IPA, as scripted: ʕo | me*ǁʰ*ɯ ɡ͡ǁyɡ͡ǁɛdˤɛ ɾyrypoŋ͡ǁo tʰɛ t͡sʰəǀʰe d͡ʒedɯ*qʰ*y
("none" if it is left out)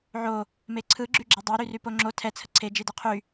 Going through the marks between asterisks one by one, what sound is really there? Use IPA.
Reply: ǀʰ, qʰ

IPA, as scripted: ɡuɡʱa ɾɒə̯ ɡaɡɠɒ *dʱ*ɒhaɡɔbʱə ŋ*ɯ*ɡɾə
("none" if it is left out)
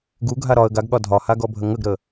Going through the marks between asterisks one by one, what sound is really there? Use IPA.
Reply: dʱ, ə

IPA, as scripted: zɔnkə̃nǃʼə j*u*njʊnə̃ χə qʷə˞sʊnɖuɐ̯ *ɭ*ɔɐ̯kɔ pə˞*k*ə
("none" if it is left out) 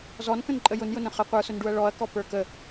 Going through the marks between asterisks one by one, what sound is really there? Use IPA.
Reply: ʊ, ɭ, k

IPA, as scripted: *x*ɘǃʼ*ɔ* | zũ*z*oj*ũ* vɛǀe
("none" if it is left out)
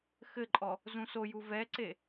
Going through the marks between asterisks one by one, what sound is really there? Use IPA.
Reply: x, ɔ, s, u

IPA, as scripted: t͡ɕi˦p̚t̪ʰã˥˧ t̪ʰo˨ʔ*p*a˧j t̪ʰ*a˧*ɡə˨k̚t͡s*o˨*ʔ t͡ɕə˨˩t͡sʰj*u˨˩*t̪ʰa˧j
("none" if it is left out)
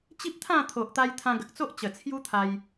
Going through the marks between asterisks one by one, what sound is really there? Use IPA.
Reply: t̪, ã˧, o˦, u˦

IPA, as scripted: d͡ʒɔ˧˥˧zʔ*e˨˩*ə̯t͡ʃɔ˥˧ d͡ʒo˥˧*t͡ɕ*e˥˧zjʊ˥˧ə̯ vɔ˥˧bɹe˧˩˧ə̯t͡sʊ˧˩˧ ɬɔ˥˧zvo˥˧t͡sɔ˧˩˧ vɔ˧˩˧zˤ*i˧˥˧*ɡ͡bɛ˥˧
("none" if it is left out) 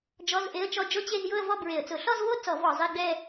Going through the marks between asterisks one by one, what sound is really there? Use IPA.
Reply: e˧˥˧, t͡ɕ, i˧˥˧

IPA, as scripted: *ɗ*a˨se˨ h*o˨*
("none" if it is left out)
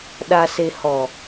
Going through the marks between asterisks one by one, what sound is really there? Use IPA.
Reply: ɗ, ɔ˨

